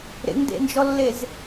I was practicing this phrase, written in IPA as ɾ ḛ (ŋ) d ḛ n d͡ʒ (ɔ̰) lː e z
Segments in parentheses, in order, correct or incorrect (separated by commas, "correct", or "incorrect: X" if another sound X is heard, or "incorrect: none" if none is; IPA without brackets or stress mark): correct, incorrect: ɔ